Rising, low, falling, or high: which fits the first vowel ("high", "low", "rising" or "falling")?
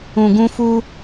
low